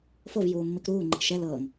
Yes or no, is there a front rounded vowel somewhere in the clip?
no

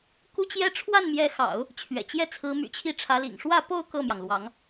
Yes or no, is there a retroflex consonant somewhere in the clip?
yes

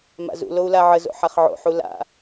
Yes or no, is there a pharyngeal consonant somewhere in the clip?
yes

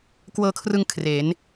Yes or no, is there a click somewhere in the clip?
no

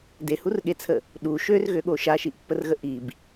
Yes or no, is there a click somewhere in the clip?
no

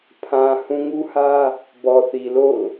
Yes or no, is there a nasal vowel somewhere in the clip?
yes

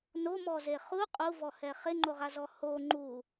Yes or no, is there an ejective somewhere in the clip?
yes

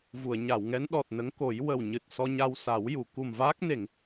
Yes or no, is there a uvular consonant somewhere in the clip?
no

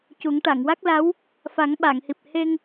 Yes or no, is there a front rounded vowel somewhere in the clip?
no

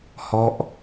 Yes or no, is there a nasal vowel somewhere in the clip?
no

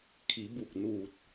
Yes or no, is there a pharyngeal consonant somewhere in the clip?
no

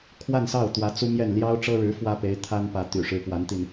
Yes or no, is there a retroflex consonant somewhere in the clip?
yes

